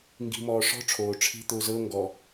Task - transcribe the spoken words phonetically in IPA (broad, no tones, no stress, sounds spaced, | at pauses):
ŋ ɡ i̤ m ɔː ʂ ɔ̤ ʈ͡ʂʰ oː ʈ͡ʂʰ i̤ t̪ ʊː z ɤ ŋ ɡ ɔ